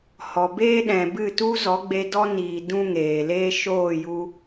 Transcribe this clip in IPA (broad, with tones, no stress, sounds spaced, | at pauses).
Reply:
h ɔ˨ b eː˦ ɗ ɛ̃˨ b ɨ˦˨ t u˦ z ɔ˨˦ ɡ͡b e˧ d ɔ˦ n iː˨ d ũ˦ ŋ eː˨ l eː˦ ʃ oː˦˨ j u˧